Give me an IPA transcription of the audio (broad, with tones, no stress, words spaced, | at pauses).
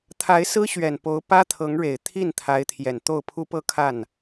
t̪ʰa˧˥ɪ̯sɹ̩˥ɕɥɛ˨˩n po˧˥ʊ̯pä˥t̪ʰɤ˧˥ŋɻe˨˩ɪ̯ t̪ʰi˥˩n t̪ʰa˧˥ɪ̯t̪ʰjɛ˨˩nt̪o˥˩ʊ̯ pʰu˥pɤ˥ kʰa˥˩n